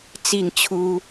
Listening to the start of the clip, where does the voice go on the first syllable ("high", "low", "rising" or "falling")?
falling